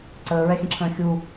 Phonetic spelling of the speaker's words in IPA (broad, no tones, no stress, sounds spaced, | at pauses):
ǀ əː ɹ ɛ xʲ ə̃ ǁʰ ə̃ː xʲ u